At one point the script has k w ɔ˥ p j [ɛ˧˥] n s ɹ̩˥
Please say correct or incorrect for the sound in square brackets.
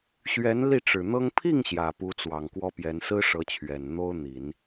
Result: correct